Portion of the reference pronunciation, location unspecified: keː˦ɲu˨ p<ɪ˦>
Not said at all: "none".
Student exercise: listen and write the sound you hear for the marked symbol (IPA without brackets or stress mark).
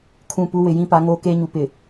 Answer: ɪ˨